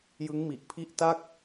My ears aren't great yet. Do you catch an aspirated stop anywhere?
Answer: yes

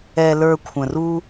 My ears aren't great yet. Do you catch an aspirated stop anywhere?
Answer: yes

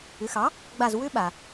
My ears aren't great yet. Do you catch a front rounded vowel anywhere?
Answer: yes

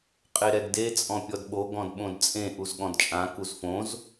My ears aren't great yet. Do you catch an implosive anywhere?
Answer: yes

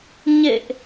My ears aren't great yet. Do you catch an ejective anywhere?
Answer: no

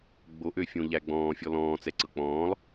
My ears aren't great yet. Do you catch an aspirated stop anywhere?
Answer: no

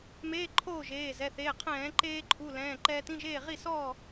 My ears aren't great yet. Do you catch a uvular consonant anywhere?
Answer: yes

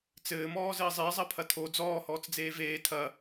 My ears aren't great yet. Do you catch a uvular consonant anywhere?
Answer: no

